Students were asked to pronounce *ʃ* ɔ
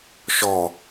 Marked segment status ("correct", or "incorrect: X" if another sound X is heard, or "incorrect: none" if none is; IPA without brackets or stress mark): correct